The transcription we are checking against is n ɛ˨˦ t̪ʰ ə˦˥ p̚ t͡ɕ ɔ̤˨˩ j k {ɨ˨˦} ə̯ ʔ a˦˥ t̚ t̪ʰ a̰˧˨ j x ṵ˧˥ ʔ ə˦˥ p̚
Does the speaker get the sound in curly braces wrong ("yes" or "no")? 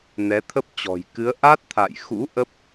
no